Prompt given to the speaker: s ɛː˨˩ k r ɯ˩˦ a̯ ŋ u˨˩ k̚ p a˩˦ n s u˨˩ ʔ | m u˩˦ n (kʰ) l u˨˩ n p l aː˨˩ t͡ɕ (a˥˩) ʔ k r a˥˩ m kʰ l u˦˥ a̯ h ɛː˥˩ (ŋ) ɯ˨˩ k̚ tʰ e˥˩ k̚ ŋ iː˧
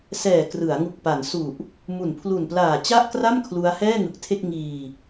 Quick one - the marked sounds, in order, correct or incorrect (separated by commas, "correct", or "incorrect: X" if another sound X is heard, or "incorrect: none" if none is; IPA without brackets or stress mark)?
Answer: incorrect: pʰ, correct, correct